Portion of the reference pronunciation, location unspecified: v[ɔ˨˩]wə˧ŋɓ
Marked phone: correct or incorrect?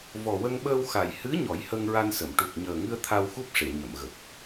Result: correct